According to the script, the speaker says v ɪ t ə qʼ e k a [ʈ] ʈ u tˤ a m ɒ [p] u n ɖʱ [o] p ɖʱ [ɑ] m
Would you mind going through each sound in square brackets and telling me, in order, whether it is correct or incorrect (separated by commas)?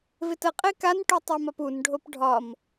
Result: incorrect, correct, correct, incorrect